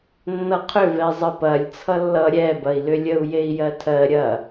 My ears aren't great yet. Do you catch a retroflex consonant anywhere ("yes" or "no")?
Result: no